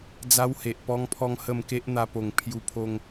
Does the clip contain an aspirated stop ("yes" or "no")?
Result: yes